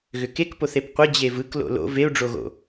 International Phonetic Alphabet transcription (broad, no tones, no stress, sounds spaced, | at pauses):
ɣ ʏ k e k p o θ e p qʷ ə d͡ʑ e v ɯ k l o̰ l o̰ v e u̯ ɖ͡ʐ o ɣ o̰